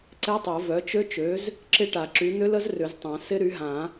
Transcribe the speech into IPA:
ǀ ɛ˦˥ tˤ o˨˩˦ v œ˩˥ t͡ʃ ø˦˥ t͡ʃ ø˩˥ z | ǁ ɪ˦˥ ʈ a˨ ǁ y˩˥ n̪ ʏ˦˥ l ə˦˥ z r ʏ˨˩˦ z tˤ ã˨˩˦ s ɪ˦˥ ɾ y˩˥ ɦ ã˨˩˦

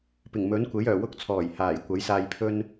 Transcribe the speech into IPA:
p ɪ˨˩ ŋ m ɵ˨˥ n kʷ e˨˥ j œː˨˩ w ʊ˥ k̚ t͡sʰ ɔː˨˩ j h aː˨˩ j kʷ ɐ˨˥ j s aː˧ j pʰ ɵ˥ n

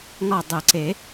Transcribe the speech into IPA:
ŋ ɒ˦˨ dˤ ɘ˨˩˦ ǀ e˨˩˦

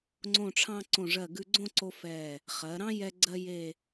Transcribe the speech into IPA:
ŋ͡ǀ õ˧˩ ʈ͡ʂʰ ɑ̃˧ ǀ õ˧˩ ʐ ɜ˧˩ ɡ ʉ˧ ɡ͡ǀ õ˥˧ ǀ o˧ f ɛ˧˩ | χ ɜ˩˧ ɾ ɑ̃˥ j ɛ˥ ɡ͡ǀ ɜ˥ j e˥˧

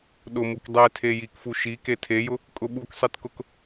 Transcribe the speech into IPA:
ɗ ʊ m u k dˤ e tʰ e j i k f u ʃ i k e tʰ e j ʊ | kʼ ʊ ɓ u k sˤ i t k ʊ k

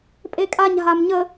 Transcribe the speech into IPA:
pʼ e kʼ a ɲ ɦ a m ɲ ə

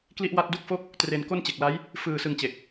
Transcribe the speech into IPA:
k l i˥˩ ʔ w a˥˩ t̚ d u˥˩ k̚ f o˥˩ k̚ | t r e˧ n k o˥˩ n t͡ɕ e˨˩ k̚ l a˦˥ j | f ɯː˧ s ɯ˧ ŋ t͡ɕ e˨˩ k̚

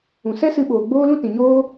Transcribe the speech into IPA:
ũ˨ s ɛ˦ s ɨ˧ ɓ oː˨ ɡ͡b oː˦ l ũ˦ t ĩ˨ ɲ oː˦

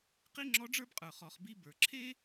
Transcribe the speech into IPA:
q i˥ ŋ͡ǁ ɔ˧˥ ɖ͡ʐ ə˞˥ b qʼ ə˞˩ χ ɔ˩˧ χ b i˧˥ b ə˞˩ ǁʰ e˥

